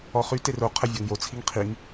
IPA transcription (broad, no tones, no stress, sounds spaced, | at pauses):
ɔ χ y t e r o qʰ ə vʲ ɔ ŋ j o t͡sʰ i ŋ qʰ i ŋ